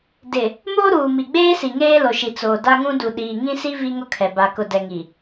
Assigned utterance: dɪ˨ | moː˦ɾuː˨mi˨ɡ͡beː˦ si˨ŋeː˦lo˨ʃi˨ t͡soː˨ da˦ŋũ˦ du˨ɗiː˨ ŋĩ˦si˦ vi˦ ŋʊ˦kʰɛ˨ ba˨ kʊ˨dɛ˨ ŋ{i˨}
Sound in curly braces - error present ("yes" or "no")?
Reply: no